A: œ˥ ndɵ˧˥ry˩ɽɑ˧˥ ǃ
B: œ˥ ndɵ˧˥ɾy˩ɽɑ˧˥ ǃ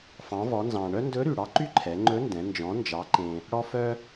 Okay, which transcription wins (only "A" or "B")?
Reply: B